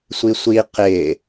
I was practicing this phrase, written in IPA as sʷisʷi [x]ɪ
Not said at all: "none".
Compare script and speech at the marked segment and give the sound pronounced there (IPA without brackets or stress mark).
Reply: q